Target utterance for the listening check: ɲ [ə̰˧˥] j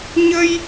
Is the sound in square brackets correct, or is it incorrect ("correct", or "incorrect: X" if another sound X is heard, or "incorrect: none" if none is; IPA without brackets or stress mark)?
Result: incorrect: ə˧